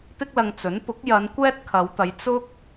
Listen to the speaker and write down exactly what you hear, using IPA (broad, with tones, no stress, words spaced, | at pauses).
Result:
t̪ɪ˥k̚lɐ˧ŋt͡sɵ˨˥n pʊ˨˥k̚jɐ˨˧n kʷɛː˥t̚kʰɐ˨˧wt̪ɐ˨˧j t͡sʊ˥k̚